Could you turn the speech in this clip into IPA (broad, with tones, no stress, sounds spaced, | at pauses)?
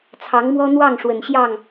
t͡sʰ ɑ˧˥ ŋ m w ɔ˥ n̪ w ɑ˥˩ ŋ ʂ w ə˨˩ n ɕ j ɑ˥˩ ŋ